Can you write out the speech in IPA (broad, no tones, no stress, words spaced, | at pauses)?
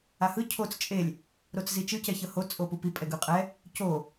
ahɯ cʰot͡s t͡ʃʼelʲ | ɾot͡szit͡ʃɯ cɛçɤho t͡sʼopupi pʼɛɡɯqʼɛ | co